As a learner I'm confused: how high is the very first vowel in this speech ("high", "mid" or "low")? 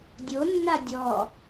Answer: mid